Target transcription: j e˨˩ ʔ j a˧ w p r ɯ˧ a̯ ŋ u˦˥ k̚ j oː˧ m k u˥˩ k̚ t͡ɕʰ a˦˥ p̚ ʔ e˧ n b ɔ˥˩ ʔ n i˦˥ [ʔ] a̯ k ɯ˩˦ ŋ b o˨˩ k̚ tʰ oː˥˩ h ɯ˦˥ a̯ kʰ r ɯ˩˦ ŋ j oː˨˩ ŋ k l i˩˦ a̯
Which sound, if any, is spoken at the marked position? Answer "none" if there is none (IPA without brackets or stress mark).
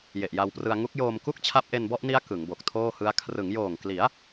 none